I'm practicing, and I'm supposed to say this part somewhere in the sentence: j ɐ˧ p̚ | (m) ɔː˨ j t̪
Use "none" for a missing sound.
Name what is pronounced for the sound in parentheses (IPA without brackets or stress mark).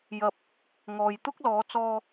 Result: ŋ